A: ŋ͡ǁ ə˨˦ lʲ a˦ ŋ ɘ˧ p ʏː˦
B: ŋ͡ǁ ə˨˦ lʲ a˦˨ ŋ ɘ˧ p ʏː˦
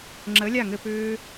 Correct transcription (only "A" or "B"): B